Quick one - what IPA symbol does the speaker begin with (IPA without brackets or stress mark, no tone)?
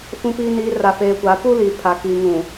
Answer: f